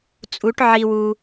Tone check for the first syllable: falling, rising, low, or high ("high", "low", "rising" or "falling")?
rising